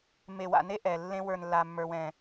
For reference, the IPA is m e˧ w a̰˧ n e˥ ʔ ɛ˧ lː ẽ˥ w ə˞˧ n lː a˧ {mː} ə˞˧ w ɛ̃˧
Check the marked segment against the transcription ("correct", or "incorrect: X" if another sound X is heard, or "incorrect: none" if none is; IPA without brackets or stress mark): correct